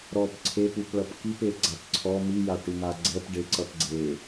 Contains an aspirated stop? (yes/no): yes